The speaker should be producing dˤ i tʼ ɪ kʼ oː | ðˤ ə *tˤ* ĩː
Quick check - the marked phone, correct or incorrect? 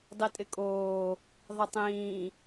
correct